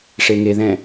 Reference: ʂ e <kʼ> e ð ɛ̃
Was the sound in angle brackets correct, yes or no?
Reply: no